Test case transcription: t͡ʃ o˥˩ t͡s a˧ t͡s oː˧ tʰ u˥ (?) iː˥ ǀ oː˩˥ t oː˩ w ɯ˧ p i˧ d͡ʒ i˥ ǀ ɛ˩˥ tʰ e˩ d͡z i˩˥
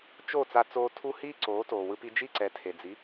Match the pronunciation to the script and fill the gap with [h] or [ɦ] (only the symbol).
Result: h